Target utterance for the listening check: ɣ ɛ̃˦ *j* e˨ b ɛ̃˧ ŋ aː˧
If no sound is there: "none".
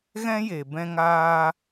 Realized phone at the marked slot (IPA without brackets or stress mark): j